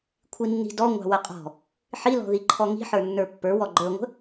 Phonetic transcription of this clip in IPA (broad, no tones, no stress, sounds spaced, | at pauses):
kʷʰ i nː i̤ d ɔ ŋʷ ɑ̤ w ə qʼ ɔ̤ | ħ i l ɔ̤ ð i ǃʰ ɔ ŋ i̤ ħ ə˞ nː ə˞ pː ə˞ w ɔ ɡ͡ǃ ə˞ ŋʷ ə̤